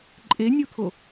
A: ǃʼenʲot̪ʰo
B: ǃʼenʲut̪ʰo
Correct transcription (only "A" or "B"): B